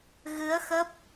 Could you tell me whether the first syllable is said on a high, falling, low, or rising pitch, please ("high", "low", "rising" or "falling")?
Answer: rising